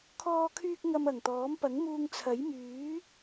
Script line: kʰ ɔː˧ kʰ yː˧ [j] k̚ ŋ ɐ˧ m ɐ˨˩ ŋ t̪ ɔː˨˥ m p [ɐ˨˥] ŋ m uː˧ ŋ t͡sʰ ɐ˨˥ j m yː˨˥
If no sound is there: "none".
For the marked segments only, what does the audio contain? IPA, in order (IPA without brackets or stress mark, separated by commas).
none, ɐ˨˥